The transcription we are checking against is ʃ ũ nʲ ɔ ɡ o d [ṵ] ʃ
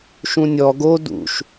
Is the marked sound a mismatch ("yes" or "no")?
no